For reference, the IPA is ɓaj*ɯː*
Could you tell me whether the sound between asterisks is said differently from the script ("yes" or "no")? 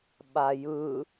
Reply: yes